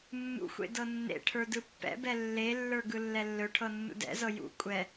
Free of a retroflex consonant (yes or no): no